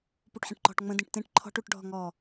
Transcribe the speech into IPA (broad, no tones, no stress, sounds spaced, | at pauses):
p u ʈ ħ ẽ ʈ ǃ ɔ̤ ʈ ŋ͡m ə̃ d ĩ ʈ t ẽ ʈ ǃʰ ɔ̤ ʈ u ʈ ɖʱ ɔ̤ ŋ ɔ